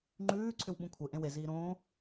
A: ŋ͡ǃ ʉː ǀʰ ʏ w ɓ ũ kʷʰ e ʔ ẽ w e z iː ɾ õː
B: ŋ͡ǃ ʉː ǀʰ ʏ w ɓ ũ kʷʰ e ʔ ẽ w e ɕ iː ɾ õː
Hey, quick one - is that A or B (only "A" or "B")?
A